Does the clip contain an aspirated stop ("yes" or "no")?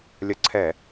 yes